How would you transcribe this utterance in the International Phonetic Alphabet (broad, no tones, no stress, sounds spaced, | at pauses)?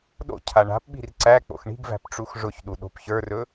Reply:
ɗ o̰ cʰ a ɳ a̤ p ɓ i̤ r ǀ æ k͡p o̰ x ɳ i̤ ɡ v æ̤ p ʈ͡ʂ u x ʐ ʊ ç ɗ u ɗ o̤ p ç ə˞ r ɵ